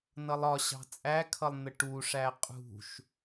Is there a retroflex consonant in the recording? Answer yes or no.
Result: yes